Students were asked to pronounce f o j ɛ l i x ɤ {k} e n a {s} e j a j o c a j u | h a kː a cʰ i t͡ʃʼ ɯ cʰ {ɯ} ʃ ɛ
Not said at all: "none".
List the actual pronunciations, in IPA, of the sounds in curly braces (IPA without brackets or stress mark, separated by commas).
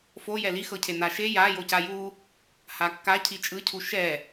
cʰ, ʃ, u